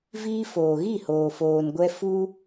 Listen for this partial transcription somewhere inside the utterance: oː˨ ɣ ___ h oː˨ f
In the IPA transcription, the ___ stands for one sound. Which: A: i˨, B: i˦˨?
B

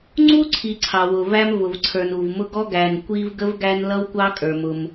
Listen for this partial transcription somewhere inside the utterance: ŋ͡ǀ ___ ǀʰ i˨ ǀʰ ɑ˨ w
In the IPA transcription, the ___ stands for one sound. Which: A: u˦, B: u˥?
B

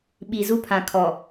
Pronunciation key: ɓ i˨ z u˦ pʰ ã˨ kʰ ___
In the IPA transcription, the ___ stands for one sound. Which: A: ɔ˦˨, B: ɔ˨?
B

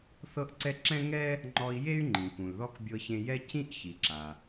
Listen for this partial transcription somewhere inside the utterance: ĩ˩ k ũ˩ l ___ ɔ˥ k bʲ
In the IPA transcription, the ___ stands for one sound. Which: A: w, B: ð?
B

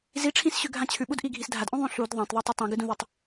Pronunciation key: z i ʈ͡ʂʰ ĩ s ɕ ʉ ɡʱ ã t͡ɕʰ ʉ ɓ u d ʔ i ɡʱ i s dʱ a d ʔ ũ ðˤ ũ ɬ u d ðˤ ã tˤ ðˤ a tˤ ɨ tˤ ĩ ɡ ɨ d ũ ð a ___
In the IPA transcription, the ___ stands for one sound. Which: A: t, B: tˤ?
B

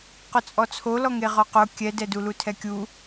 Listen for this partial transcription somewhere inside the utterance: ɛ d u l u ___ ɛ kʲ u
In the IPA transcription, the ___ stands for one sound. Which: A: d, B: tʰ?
B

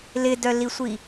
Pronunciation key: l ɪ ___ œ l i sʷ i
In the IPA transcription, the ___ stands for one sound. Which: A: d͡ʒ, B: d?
B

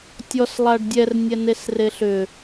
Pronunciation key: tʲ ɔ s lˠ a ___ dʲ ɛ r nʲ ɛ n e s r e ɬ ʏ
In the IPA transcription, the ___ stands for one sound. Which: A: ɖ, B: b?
A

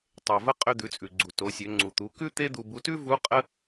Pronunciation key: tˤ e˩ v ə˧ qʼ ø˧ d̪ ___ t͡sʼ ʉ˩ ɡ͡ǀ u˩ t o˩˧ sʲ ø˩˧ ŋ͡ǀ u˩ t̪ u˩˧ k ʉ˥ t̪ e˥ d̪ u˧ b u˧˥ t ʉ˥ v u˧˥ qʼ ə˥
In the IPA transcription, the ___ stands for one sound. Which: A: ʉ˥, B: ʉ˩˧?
B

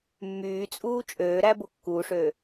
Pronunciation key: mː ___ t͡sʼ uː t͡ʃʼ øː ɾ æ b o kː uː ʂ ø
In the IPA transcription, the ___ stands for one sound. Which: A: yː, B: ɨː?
A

